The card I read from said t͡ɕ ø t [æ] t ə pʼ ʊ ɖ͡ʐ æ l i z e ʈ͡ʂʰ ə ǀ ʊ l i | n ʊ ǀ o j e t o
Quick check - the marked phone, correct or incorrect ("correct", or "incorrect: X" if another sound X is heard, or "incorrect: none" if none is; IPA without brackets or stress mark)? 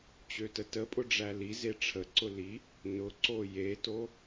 incorrect: ə